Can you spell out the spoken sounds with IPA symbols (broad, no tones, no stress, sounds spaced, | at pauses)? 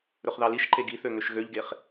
ɾ ɵ χ ð ɑ l i ʃ ǃ e ɡ i θ ø ŋ ø ʃ ɣ ø ʎ ɡ e χ